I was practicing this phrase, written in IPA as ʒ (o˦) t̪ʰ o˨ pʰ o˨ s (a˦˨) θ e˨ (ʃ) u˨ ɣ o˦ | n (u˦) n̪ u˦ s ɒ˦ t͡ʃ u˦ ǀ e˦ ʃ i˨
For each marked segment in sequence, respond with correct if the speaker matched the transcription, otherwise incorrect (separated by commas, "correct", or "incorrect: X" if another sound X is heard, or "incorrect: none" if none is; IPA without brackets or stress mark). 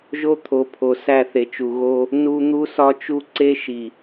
correct, incorrect: æ˦˨, incorrect: t͡ʃ, correct